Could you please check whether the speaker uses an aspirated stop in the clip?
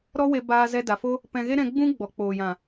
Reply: no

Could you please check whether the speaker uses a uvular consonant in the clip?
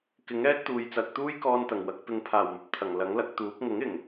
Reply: no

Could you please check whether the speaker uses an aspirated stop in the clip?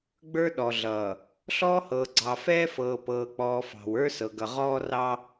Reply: no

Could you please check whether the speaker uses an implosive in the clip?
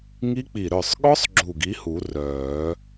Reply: yes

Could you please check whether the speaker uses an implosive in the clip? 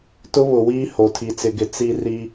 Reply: no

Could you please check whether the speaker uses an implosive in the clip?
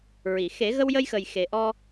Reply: no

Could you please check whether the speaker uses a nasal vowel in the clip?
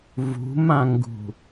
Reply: yes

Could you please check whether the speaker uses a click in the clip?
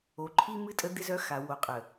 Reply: yes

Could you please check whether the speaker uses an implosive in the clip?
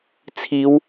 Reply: no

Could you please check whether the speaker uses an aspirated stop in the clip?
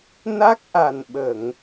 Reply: no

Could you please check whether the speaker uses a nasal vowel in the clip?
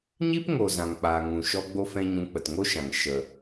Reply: yes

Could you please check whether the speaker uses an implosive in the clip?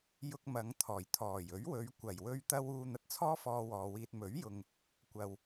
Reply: no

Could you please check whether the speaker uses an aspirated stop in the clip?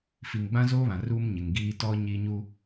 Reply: no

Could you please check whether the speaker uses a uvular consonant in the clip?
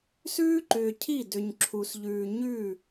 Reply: no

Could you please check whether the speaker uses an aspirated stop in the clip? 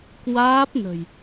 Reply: no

